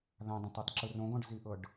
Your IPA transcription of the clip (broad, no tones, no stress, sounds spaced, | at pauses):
ð ã dˤ õ tˤ ɯ tˤ ǁ ɯ r õ ɡ ɔ̃ ɖ z i ʔ ɤ ɖ